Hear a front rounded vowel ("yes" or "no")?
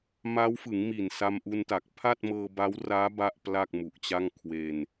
no